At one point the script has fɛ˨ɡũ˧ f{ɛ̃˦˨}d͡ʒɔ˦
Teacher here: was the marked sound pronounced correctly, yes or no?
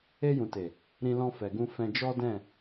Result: no